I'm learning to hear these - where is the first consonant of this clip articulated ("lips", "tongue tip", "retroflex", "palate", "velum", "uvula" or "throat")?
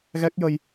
velum